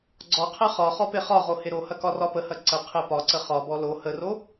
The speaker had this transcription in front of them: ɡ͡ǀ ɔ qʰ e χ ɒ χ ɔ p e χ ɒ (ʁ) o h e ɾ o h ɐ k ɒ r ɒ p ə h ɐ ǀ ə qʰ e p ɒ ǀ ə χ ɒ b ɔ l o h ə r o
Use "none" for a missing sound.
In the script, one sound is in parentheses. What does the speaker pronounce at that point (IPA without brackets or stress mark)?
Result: ʁ